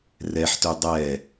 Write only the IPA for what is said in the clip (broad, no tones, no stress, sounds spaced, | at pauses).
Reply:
r ɛ ħ t ø dˤ ɛ